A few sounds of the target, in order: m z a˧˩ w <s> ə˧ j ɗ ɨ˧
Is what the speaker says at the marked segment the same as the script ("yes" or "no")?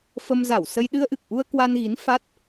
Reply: yes